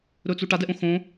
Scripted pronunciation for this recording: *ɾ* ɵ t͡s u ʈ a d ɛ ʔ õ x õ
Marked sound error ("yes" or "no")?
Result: no